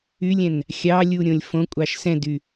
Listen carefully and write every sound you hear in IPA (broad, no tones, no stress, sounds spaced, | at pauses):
y lʲ ɛ̃ n | xʲ ɑ lʲ u ɾʲ õ lʲ f õ kʷʼ ɑ ʃ s ɛ̃ d y